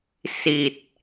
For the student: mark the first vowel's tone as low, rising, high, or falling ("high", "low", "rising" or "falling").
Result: low